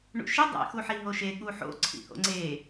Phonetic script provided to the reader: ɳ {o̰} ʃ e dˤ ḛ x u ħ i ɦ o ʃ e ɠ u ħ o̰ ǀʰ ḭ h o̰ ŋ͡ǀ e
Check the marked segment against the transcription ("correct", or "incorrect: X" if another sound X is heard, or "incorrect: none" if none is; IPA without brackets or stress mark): incorrect: ṵ